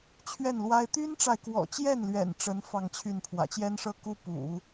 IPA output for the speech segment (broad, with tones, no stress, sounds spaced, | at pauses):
t͡ɕʰ ɥ ɛ˥˩ n l w a˥ ɪ̯ t̪ y˥ n ʈ͡ʂ a˨ ɪ̯ k w ɔ̰˨˩ t͡ɕ j ɛ˥˩ n l ɥ ɛ̰˨˩ n ʈ͡ʂ ə˧˥ n f ɑ˥˧ ŋ t͡ɕʰ y˥˩ n pʰ w ä̰˨˩ t͡ɕ j ɛ˥ n ʂ ɤ˥˩ k u˥ p ṵ˨˩˦